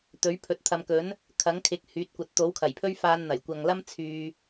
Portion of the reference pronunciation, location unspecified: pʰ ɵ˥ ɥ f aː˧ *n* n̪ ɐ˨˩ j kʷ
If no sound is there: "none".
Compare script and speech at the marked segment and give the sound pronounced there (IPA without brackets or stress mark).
n